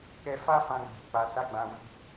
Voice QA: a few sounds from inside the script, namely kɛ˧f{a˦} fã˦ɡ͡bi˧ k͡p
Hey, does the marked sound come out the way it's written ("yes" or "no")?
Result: yes